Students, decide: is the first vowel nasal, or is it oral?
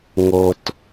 oral